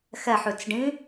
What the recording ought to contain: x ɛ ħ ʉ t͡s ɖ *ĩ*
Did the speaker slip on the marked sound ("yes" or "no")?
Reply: no